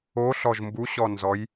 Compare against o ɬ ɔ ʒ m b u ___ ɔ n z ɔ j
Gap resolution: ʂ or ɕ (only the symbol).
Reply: ɕ